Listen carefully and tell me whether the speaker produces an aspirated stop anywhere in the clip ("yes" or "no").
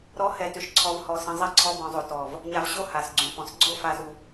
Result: yes